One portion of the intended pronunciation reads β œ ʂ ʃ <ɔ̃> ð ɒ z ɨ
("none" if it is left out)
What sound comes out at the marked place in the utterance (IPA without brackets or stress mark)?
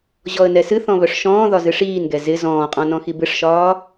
ɔ̃ː